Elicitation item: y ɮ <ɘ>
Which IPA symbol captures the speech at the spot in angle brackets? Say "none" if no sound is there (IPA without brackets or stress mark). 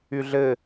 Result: ɘ